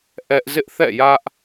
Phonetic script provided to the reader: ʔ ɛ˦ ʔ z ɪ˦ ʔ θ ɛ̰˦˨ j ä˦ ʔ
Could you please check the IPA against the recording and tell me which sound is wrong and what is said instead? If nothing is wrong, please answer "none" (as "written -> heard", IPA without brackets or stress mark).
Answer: none